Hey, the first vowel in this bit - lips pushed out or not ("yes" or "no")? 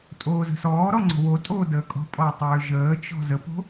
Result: yes